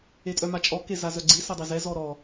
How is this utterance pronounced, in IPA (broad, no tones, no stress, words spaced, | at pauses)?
etʼœmat͡ʃʼɔ kezazœɡ͡ǀi sadˤizɛ zɔɾɔ